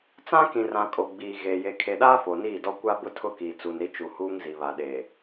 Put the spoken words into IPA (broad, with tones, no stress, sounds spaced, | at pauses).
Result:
t͡s ã˦ k ĩ˨ r ã˨ kʼ o˨ ɡ͡b iː˨ ɣ eː˨ j e˨ kʰ e˨ ɗ aː˦ f o˨ n iː˦˨ d ɔ˦ kʷ a˦ b ʊ˦ tʰ ʊ˦ k iː˨ t͡s u˨ n ɾ i˦ t͡ʃ u˨ h uː˦ ŋ z i˨ β a˨ ɗ eː˨